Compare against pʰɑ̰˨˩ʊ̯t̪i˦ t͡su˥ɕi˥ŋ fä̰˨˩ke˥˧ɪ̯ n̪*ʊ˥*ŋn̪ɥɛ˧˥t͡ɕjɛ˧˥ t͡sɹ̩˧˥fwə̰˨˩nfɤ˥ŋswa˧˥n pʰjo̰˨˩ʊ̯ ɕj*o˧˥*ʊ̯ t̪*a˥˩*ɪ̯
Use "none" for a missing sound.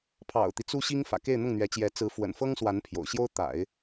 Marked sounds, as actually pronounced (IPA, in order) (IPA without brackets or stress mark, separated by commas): ʊ˥˩, o˥, a̰˨˩˦